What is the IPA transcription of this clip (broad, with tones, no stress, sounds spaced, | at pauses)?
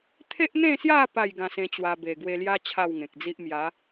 t̪ʰ e˦ ʔ n̪ ẽ˥˧ s j a˥˧ p a˥˧ j ɡ ã˧ s ẽ˧ t͡ɕ w a˧ b e˨˩ ɡ w e˧ l j a˦ t͡ɕʰ a˥˧ w ŋ ẽ˨ k̚ d͡z i˦ ʔ m j a˨˦